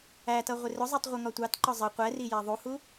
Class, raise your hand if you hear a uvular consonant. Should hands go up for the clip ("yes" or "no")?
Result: yes